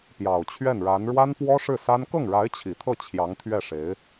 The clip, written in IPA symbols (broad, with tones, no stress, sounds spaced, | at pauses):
p j ɑ˨˩ ʊ̯ t͡ɕʰ ɥ ɛ˥˩ n ɻ a˧˥ n ɻ w a˥ n p w ɔ˥ ʂ ɻ̩˥˩ s a˥ n k ɤ˥˩ ŋ ɻ a˧˥ ɪ̯ t͡ɕʰ i˨˩ t̪ʰ ɤ˥˩ t͡ɕʰ j ɑ˧˥ ŋ t̪ʰ ɥ ɛ˥˩ ʂ e˧˥ ɪ̯